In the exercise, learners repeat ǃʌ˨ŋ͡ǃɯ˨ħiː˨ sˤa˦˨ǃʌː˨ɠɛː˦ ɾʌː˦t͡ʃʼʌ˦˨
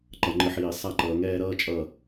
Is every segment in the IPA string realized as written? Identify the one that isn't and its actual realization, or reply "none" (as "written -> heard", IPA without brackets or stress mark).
ɠ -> ŋ